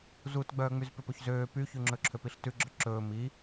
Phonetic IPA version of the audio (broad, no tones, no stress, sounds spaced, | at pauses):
z u t ɡ͡b œː ŋ͡m y z p e p ɵ ç z øː p y ç ʉ ŋ͡ǁ ɵ ǁʰ ø p i ɬ t ʉ ɡ͡ǁ œ ǁ ɵː m i